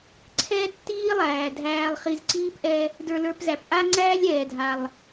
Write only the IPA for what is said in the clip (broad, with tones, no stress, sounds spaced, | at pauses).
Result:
ǀʰ ɛ˥ tː iː˥ lˠ æː˩ dʱ æː˨ lˠ χ i˨ z ǀ iː˥ p ʔ ɛ˦ | d ə˞˨ l ə˞˨ p z æ˩ p ʔ a˥ ŋ͡ǀ æː˥ lʲ ɛː˩ dʱ a˩ lˠ